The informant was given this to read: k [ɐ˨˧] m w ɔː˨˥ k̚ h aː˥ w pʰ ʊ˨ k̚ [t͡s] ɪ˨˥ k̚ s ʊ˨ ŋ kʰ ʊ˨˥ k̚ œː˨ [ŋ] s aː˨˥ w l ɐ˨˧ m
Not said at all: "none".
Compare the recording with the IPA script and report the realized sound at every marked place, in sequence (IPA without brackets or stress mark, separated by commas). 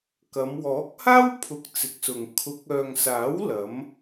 ɐ˨˧, t͡s, ŋ